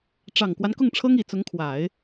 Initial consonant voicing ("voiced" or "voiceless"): voiceless